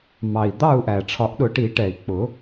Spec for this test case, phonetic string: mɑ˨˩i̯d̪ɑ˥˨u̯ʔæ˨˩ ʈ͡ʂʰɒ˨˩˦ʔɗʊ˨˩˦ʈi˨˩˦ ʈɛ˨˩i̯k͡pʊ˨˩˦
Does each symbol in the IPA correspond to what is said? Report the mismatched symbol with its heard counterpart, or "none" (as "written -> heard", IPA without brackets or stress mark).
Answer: none